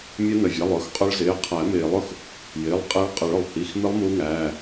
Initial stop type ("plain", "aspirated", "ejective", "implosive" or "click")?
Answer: ejective